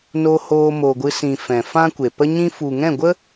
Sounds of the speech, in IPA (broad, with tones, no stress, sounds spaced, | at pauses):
n o˧ h oː˧ m o˨ ɡʷ ɨ˧ s ĩ˨ f ɛ̃˨ f ã˦ kʷ e˨ p ə˦ ɲ ĩ˦ f u˨ ŋ ɛ̃˦˨ ɡʷ ə˦